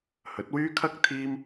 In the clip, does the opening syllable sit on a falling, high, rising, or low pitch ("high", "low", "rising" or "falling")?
rising